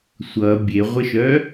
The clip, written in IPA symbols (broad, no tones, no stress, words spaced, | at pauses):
sʷʌ bʲeʁʷəʃœ